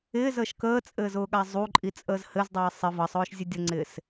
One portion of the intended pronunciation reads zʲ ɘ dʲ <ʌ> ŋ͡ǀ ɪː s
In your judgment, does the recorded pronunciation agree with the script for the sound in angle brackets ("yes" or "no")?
yes